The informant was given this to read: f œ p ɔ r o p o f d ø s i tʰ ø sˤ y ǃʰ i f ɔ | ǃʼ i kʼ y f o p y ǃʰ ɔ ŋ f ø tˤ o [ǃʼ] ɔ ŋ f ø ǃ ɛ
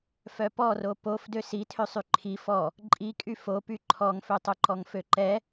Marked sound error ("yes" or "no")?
yes